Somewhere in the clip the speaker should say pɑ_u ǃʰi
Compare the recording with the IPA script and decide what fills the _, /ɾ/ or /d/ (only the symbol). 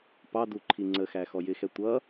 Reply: d